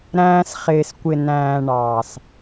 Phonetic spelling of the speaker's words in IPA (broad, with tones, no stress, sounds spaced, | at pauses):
ɾ æ̃ː˧ s χ ɪː˨ s kʷ ɪ˨ n æ̃ː˨ ɳ ɑː˨ s